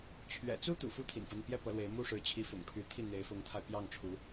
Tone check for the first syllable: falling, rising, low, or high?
low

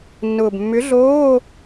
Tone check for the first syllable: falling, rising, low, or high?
low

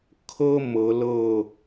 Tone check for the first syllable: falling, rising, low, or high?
high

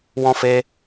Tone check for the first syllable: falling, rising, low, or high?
high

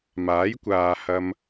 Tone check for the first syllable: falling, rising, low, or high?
rising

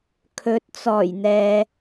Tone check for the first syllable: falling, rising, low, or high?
rising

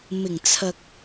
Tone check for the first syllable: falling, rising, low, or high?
low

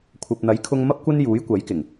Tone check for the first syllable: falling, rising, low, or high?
low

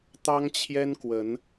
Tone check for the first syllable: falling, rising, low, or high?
high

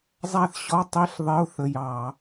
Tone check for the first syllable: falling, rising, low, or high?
falling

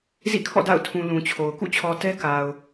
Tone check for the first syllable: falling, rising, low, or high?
falling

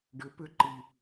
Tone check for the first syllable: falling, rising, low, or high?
rising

